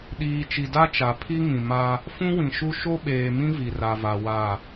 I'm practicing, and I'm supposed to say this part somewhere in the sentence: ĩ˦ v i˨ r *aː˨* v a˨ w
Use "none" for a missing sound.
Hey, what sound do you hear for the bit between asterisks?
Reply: a˨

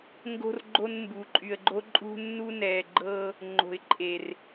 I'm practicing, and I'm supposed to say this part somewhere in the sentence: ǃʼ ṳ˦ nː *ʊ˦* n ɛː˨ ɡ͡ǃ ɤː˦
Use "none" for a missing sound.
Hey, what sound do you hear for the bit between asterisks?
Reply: u˦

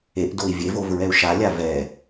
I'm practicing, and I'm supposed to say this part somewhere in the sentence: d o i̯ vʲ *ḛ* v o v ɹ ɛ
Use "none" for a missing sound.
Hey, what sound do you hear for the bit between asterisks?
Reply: e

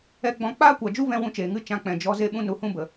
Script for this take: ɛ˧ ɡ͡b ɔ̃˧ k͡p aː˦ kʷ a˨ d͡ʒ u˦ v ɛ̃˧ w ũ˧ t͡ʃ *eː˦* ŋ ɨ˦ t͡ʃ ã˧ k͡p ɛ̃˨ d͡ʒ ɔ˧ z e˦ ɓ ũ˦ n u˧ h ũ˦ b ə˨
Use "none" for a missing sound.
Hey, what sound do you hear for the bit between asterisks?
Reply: eː˨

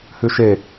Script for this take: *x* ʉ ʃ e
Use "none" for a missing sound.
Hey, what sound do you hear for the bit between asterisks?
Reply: h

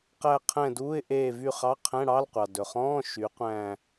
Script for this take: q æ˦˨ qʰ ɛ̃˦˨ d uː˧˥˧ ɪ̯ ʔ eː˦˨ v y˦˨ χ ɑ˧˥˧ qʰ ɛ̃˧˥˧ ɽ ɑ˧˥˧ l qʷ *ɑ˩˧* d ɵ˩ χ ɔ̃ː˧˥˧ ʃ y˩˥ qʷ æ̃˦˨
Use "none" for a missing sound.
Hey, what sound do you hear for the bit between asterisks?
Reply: ɑ˩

